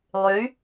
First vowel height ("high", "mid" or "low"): high